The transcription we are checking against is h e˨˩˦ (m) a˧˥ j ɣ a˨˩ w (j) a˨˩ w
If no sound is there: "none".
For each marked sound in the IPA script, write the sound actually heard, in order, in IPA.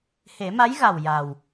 m, j

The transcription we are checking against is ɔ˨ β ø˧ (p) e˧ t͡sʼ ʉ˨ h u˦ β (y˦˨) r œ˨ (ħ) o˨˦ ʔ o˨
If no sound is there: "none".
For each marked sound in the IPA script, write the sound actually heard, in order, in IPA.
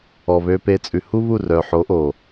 p, u˦˨, ħ

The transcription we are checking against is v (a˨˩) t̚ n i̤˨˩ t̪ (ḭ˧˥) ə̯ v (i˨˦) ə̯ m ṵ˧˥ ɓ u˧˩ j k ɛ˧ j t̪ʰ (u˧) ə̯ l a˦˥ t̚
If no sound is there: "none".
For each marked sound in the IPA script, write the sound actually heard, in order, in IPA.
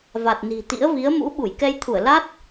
a˨˩, ḭ˧˥, i˨˦, u˧˩

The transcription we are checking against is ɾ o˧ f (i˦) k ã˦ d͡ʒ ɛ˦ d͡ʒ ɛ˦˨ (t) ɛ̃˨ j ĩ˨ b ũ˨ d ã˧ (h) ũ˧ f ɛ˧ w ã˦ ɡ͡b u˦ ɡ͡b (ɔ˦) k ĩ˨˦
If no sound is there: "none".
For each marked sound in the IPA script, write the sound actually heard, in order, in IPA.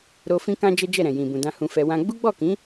ĩ˦, ɾ, h, ɔ˦˨

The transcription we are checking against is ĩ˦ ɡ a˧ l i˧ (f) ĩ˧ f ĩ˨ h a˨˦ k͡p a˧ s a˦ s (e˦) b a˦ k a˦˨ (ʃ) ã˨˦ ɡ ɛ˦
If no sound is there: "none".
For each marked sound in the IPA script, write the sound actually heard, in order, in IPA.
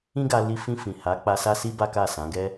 f, i˦, s

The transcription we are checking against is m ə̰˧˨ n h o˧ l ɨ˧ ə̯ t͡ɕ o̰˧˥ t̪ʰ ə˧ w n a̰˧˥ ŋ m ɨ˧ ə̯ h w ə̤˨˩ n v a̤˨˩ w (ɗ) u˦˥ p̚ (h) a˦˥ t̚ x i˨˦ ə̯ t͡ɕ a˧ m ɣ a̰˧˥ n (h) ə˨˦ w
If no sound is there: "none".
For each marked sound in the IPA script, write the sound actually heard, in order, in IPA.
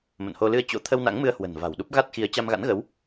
ɗ, ɣ, ɣ

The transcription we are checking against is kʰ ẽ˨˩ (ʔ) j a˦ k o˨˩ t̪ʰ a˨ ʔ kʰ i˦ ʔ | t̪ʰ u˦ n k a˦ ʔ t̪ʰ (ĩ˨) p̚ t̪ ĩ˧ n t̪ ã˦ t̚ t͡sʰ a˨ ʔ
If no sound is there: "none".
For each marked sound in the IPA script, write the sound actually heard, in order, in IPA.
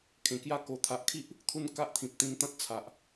k, ĩ˨

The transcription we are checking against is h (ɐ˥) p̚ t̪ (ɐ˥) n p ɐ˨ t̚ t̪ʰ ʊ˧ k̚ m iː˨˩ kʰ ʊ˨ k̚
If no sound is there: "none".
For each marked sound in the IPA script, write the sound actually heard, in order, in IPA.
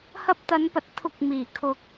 ɐ˧, ɐ˨˧

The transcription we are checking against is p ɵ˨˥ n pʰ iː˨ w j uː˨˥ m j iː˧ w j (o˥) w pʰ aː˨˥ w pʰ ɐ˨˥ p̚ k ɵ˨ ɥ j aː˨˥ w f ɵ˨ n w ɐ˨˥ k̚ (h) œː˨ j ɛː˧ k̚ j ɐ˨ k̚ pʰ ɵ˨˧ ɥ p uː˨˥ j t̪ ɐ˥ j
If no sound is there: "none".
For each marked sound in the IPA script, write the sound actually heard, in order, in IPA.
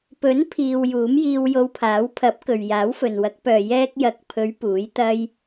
o˧, p

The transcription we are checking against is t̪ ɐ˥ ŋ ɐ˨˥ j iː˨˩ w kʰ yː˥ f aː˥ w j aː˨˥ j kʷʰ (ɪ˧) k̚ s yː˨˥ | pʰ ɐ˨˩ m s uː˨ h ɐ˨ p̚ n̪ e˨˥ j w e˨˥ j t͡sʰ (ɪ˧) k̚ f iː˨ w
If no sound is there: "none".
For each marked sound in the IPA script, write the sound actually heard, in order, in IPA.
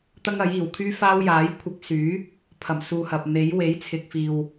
ɪ˧, ɪ˨

